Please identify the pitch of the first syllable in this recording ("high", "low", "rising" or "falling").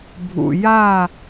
low